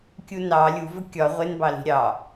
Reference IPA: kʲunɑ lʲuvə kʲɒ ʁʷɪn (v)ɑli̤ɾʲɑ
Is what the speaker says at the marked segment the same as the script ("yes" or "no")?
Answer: no